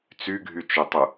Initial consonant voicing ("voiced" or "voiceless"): voiceless